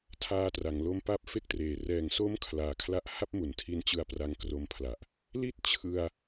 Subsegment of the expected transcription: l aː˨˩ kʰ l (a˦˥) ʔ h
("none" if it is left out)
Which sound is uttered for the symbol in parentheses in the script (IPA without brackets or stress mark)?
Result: a˦˥